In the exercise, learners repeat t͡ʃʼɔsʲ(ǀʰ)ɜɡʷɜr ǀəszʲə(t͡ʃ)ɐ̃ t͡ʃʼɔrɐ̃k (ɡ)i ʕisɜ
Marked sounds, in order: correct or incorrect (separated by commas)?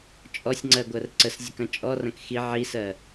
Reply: incorrect, incorrect, incorrect